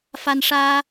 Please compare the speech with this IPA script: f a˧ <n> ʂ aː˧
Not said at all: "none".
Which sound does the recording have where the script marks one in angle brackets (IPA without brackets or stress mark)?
n